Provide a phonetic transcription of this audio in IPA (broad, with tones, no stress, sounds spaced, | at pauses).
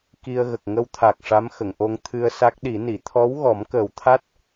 k i˧ ə̯ ɣ ə˨˩ k̚ ŋ ə˧ w t̪ʰ a˨˩ k̚ ʂ a˧˥ m x ə˨˩˨ ŋ ʔ o˧ ŋ t̪ʰ ɨ˧ ə̯ s a˦˥ k̚ ɗ i˨˩˦ n i˨˩˨ t̪ʰ ɔ˧˥ w ɣ ɔ˨˩˦ m k əː˨˩ w t̪ʰ a˦˥ t̚